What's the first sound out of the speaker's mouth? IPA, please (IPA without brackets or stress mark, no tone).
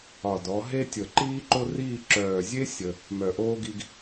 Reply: ɒ